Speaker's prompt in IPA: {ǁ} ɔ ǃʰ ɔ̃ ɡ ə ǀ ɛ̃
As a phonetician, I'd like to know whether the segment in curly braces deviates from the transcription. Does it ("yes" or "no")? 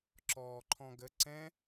no